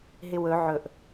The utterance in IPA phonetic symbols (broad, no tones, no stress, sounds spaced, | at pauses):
ɦ ɪ w ɵ ʕ ɵ ʔ